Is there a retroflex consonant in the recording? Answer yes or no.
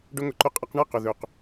yes